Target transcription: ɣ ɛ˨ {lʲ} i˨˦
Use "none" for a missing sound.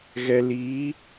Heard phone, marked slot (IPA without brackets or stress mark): l